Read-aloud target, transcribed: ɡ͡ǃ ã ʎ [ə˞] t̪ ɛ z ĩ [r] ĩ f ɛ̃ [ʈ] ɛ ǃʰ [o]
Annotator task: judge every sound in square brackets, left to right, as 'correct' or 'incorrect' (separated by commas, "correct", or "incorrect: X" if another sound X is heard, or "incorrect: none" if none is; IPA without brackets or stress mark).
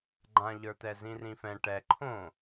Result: correct, correct, correct, incorrect: õ